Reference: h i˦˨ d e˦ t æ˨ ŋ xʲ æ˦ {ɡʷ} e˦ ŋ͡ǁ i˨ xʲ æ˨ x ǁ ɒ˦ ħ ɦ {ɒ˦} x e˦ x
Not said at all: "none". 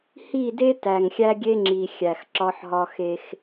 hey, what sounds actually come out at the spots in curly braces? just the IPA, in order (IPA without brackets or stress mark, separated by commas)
ɡʲ, ɒ˦